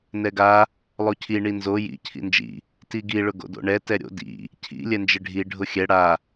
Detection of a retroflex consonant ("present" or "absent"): present